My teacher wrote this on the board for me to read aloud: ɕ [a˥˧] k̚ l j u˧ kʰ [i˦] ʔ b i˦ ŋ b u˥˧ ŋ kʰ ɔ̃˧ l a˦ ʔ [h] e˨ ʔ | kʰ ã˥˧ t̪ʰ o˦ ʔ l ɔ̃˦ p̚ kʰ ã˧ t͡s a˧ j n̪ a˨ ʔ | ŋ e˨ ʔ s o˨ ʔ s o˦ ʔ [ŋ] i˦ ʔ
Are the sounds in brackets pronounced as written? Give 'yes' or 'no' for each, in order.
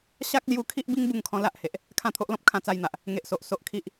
no, yes, yes, no

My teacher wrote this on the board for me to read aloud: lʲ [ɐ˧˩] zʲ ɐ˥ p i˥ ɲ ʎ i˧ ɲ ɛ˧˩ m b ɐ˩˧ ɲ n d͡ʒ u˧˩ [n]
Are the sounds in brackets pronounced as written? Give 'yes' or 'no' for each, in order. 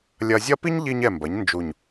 no, no

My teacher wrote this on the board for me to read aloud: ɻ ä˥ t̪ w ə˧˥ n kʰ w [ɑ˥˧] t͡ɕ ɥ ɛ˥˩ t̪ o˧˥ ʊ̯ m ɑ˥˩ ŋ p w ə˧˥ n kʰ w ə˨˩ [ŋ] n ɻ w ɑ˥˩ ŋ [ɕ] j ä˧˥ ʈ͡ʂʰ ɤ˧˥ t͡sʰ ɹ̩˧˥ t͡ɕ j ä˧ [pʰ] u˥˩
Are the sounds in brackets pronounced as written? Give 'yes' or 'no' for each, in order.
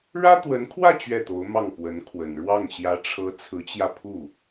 no, no, yes, yes

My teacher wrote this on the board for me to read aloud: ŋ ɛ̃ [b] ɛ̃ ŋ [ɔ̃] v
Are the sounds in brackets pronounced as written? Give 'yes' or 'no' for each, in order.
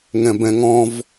yes, yes

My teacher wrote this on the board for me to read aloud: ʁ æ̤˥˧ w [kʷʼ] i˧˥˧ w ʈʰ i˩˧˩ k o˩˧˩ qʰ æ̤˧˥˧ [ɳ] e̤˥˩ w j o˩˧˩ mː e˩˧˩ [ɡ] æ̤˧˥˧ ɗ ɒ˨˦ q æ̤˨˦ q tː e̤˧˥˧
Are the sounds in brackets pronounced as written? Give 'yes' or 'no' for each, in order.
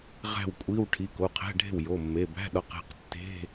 yes, no, no

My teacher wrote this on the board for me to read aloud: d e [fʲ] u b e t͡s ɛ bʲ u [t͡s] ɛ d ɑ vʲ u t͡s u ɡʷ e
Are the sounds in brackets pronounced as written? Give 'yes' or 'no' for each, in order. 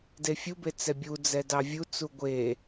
yes, no

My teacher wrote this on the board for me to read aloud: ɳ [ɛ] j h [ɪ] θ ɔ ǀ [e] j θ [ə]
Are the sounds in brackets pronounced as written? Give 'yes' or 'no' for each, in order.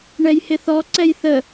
yes, yes, no, yes

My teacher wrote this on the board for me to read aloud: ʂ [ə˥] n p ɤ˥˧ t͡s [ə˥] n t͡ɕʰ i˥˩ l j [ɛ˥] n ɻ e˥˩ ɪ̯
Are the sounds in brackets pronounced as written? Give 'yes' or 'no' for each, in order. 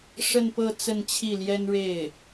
no, no, yes

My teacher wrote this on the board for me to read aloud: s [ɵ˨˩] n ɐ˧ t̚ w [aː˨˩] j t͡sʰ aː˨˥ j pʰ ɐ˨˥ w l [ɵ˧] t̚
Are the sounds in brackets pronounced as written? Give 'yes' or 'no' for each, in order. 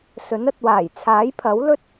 no, yes, no

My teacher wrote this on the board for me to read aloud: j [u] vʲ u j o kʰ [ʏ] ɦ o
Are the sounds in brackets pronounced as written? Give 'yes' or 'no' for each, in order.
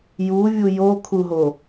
yes, no

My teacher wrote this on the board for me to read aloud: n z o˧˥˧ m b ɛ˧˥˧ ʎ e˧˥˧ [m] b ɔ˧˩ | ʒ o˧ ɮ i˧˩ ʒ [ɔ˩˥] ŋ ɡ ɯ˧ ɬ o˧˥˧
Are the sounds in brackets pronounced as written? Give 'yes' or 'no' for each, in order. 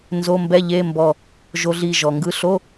yes, no

